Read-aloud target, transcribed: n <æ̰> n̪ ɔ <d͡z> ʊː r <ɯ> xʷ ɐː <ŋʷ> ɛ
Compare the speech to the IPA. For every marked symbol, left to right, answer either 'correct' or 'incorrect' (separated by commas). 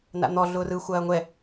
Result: incorrect, incorrect, correct, correct